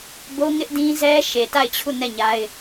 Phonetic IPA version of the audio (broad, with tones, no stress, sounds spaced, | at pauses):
b o˦ ŋ ɪ˦ ʔ d ĩ˦ z ɛ˦ ʃ e˨ t a˦˨ ɪ̯ t͡ɕʰ u˦˨ n ɛ˦˨ ɲ a˦ ɪ̯